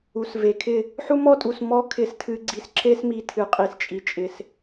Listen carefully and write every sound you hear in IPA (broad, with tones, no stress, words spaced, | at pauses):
u˨sve˨kʰɪ˦˨ | ħu˦mɔ˦tʼu˨s mɔ˦ kʰɪ˧stʰɨ˧ɡ͡ǀi˧sǁe˦s mi˧tʰɨ˨qʼi˨s t͡ʃʼi˨t͡ʃʼɪ˨s